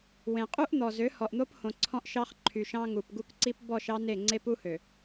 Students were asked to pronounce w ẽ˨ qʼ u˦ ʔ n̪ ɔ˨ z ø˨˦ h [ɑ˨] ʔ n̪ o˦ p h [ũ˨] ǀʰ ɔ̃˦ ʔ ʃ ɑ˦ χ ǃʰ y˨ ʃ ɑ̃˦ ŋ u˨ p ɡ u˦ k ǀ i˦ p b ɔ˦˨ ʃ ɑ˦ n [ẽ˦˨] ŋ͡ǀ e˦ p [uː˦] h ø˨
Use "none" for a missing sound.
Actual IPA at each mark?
ɔ˨, õ˨, e˦˨, u˦

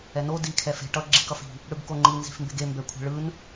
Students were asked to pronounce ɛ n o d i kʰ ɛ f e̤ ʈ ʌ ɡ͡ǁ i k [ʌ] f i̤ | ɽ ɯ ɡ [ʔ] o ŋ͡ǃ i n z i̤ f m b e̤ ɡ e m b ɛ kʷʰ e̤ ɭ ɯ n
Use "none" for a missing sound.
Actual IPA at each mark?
ʌ, k

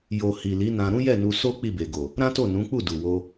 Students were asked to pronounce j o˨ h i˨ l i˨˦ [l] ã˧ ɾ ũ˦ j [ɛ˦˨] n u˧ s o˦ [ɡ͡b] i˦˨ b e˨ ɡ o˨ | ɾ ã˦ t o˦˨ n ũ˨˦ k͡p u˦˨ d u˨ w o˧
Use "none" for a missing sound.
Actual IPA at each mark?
n, ɛ˦˨, k͡p

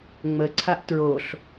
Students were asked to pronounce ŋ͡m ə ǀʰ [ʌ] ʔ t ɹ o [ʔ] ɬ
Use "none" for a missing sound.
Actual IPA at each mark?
a, none

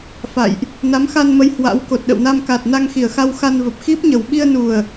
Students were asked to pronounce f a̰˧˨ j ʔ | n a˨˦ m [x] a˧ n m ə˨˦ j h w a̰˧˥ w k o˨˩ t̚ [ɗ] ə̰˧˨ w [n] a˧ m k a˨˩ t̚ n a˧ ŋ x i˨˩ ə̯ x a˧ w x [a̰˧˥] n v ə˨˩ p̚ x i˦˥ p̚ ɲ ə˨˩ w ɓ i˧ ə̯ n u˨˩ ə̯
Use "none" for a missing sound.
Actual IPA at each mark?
x, ɗ, n, a˧

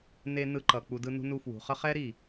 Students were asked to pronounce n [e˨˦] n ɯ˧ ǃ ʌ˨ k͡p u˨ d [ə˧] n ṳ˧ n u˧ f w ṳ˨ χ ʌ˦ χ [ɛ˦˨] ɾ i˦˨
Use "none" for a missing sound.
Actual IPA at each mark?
e˨, ɯ˧, ɛ˦

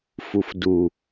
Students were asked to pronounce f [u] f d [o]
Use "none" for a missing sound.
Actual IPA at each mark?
u, u

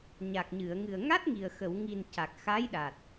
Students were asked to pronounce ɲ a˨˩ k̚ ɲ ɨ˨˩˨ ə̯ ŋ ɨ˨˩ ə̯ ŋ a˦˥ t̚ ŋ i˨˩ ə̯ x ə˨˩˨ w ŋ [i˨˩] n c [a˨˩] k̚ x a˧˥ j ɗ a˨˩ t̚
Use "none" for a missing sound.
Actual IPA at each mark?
i˨˩, a˨˩

